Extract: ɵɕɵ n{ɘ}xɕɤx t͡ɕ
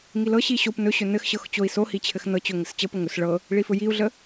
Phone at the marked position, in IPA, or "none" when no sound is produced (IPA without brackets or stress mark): ɘ